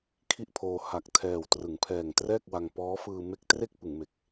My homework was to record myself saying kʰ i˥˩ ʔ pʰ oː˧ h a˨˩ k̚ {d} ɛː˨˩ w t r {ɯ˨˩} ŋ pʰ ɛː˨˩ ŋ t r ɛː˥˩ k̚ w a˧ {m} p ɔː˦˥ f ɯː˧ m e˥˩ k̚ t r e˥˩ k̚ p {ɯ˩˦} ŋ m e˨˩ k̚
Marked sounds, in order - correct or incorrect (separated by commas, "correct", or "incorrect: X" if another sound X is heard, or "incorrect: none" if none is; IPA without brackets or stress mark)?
incorrect: tʰ, incorrect: ɯ˩˦, incorrect: ŋ, correct